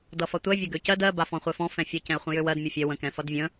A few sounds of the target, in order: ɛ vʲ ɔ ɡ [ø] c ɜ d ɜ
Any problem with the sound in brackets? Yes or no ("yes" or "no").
no